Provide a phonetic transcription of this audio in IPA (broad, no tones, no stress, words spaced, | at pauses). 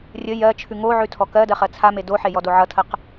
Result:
rʲə jɜt͡ʃʰʉ ŋoʕʉ tʰɔkɜdɜ χɜt͡sʰame doħe jɔdoʕʌtʰəq